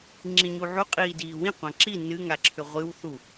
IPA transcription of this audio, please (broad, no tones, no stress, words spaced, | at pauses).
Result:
ŋ͡ǁĩɲuʕu qʼiːdiːwĩ qʷãǁi nɨ ŋaǁʰʏʁʷɨw θu